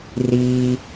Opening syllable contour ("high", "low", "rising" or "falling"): low